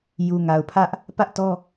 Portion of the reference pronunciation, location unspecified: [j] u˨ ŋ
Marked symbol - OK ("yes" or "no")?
yes